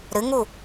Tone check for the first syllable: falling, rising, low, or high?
rising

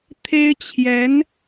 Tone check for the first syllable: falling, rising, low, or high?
high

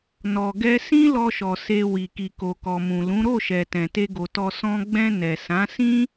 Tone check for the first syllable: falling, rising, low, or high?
low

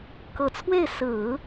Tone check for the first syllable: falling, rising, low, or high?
low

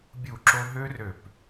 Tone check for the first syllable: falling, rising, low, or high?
falling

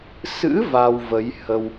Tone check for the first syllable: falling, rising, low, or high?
rising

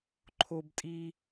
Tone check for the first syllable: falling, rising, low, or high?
high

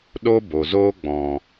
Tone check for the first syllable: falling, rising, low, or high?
high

